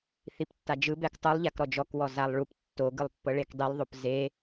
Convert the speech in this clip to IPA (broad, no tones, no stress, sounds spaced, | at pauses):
θ i p tː a d͡ʒ ɯ b ɛ k tˤ u lˠ ʎ a k ɾ ɔ d͡ʒ ɔ k w ɔ z a lˠ ɭ u p tː o ɡ ɯ lˠ pː ɤ ɭ e k dˤ i lˠ ðˤ o p z e